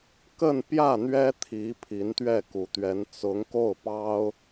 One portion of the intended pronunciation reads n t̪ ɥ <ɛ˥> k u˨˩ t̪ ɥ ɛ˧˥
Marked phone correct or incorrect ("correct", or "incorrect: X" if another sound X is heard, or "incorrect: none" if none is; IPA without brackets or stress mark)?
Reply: incorrect: ɛ˥˩